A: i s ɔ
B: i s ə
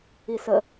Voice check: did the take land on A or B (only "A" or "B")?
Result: B